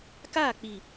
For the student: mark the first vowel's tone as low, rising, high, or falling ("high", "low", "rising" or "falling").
falling